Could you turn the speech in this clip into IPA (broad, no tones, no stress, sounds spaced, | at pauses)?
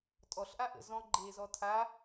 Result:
tʼ ɔ ɬ ʔ a ʔ ə̰ z ɔ̃ ɡ͡ǃ eː z ɔ tʰ a